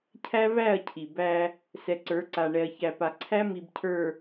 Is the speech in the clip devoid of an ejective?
yes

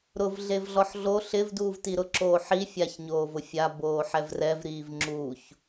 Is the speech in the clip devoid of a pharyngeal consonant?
no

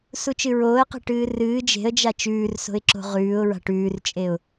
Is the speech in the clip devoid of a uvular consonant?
no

